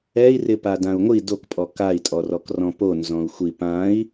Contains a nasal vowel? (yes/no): yes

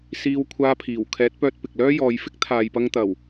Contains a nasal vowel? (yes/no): no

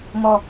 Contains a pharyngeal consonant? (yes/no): no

